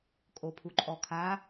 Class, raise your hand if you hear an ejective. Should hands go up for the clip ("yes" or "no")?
yes